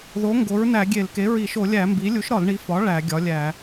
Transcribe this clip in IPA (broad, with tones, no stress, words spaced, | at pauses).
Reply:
ðo˩˥ ŋɡo˩˥ɹnæ˧˩˧ɡʲe˧˩˧l ke˩˥ɹi˧˩˧ ʃo˧˩˧lʲæ˧˩˧ mbi˩˥ lʲu˩˥ʃɾɒ˧˩˧lɳi˩˥ fɒ˩˥ ɭæ˧˩˧ ɡʲɒ˩˥lʲæ˧˩˧